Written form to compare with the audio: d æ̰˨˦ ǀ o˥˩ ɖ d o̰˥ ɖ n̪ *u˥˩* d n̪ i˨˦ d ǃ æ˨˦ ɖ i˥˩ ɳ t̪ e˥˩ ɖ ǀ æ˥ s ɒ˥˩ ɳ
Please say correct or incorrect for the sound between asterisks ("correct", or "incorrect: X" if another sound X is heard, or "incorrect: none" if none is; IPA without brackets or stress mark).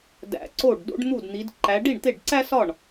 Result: correct